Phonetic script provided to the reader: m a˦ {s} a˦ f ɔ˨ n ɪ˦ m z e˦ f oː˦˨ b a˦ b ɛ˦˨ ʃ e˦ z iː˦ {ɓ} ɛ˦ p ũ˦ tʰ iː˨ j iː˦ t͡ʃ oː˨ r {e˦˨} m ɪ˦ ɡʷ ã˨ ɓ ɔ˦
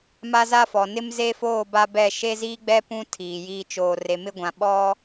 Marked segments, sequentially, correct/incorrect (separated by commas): incorrect, incorrect, incorrect